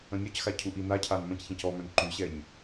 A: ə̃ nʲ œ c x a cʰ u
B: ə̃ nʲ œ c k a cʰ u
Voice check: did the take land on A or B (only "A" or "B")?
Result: A